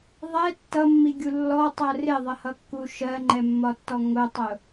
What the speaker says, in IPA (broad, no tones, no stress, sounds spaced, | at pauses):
ðˤ ɛ tː ʌ mː i ɡʲ u lː ɔ tˤ ɜ r ɪ ðˤ ə h ʌ kː u ʃ ɜ ŋ͡ǃ ɛ mː ɒ tː ɔ ŋ ʊ tˤ ʊ